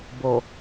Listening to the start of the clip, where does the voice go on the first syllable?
low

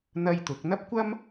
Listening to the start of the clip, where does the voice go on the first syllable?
high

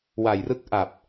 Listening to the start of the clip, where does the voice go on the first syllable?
low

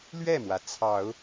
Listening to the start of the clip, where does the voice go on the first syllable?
falling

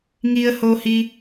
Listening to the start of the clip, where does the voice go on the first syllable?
low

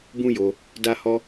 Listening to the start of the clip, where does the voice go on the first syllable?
high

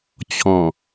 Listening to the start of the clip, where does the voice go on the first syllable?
low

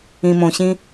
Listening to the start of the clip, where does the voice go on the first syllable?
low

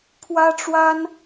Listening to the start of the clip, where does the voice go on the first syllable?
high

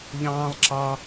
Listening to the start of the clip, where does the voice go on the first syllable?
high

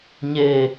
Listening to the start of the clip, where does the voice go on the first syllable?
low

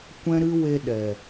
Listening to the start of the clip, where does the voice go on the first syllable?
high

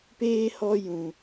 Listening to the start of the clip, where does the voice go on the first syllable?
high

